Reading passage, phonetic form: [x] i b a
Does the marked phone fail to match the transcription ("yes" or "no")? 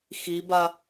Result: no